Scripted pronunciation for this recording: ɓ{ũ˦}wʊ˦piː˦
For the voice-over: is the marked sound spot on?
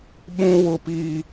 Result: yes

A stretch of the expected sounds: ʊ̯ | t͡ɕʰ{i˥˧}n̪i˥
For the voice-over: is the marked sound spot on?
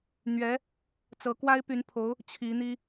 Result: no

